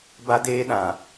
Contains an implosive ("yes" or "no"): yes